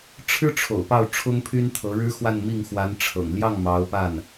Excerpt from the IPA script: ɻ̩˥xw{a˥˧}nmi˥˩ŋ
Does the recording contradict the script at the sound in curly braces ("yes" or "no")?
no